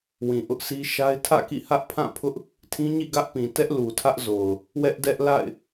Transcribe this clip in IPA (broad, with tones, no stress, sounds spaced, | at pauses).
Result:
w ĩ˨ ʔ ʊ˦ ʔ sʰ i˦ ʃ a˦ ɪ̯ tʰ ä̰˦˨ k ḭ˦˨ h ä˦ ʔ pʰ ã˦˨ pʰ ʊ˦ ʔ | tʰ ĩ˦ ɲ ḭ˦˨ ɡ ä˦ ʔ p ĩ˨ t ɛ˦ ʔ l u˨ tʰ ä˦ ʔ z o˨ ʊ̯ | w ɛ˦ ʔ d ɛ˦ ʔ l a̰˦˨ ɪ̯